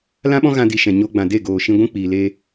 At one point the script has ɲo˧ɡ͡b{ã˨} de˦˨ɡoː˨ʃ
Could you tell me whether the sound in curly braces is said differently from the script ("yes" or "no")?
no